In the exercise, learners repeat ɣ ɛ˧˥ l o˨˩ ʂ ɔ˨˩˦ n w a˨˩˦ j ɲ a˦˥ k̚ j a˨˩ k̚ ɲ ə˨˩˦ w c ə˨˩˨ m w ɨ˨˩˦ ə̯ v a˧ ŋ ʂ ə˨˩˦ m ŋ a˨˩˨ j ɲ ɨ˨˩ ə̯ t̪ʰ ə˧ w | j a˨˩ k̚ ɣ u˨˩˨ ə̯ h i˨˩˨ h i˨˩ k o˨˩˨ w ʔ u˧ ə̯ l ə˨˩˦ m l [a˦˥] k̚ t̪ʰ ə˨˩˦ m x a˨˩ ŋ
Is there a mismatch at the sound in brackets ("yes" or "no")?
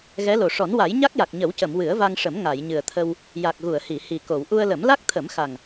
no